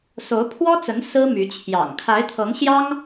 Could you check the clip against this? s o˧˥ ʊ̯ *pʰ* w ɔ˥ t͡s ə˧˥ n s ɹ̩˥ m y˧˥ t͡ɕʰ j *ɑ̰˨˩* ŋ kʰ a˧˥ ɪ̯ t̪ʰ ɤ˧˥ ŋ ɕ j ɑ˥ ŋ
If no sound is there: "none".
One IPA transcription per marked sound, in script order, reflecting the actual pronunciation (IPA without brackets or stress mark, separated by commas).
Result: pʰ, ɑ̰˨˩